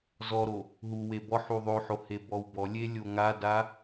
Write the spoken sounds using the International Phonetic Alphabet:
z ɔ ɾ o | ɦ u w e b ɔ ħ u ðˤ o ħ o h e b ɔ w b ɔ lʲ e lʲ o ŋ a d a

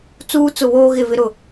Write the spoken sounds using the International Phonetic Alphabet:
t͡s uː˦ t͡s ʊ˦˨ β oː˦ ɣ ɪ˦˨ v ɪ˦ ɾ ʊ˦˨

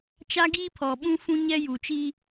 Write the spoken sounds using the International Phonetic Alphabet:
t͡ʃ a˦ ɡ iː˦ pʰ ɔ˨ ɓ ũ˦ f ũ˦ ɲ ɛ˦ j u˨ t͡ʃ i˦

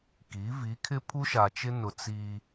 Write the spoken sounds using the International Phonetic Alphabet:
k i˨˦ v i˨˦ kʰ ɪ˦ pʰ u˦ ʃ a˨ t͡ʃ ɪ˦ n ʊ˨ t͡s iː˦

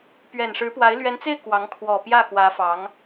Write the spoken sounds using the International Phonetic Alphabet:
p ɥ ɛ˨˩ n ʂ ɻ̩˧˥ p w a˧˥ ɪ̯ l ɥ ɛ˧˥ n t͡s e˥˩ ɪ̯ k w ɑ˧˥ ŋ kʰ w ɔ˨˩ p j ä˥˩ x w ä˧˥ f ɑ˧˥ ŋ

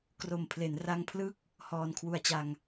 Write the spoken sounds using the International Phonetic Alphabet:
k r o˨˩ m pʰ l e˩˦ n r a˧ ŋ pʰ l ɯ˥˩ k̚ | h ɔː˧ n kʰ w u˧ a̯ t͡ɕ a˧ ŋ

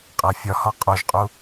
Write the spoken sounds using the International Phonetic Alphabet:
qʼ æ fʲ ɒ h ɒ qʼ o ʒ qʼ u

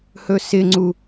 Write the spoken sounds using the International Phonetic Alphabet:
h ɵ s ɪ ŋ͡ǀ u

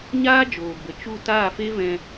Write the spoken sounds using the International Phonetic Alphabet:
ɲ aː˦ d͡ʒ oː˨ b ə˨ t͡ʃ u˦˨ t aː˦˨ f e˦ v ɛ̃˧

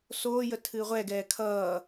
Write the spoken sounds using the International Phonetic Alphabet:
s oː j ə tʰ ɨː ʁʷ ɛ ɡ ɛː kʰ ʌː

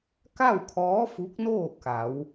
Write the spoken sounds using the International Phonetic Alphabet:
k a˥˨ w kʰ ɔː˧˥ f u˧˥ k̚ n oː˥˨ k a˩˧ w

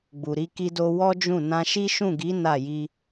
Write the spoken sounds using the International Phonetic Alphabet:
ɡ͡b u˨ ɾ i˧ k i˧ d o˧ w ɔ˦ d͡ʒ ũ˦˨ n ã˧ ʃ i˦ ʃ ũ˦˨ ɡ i˨˦ n a˦˨ j i˧

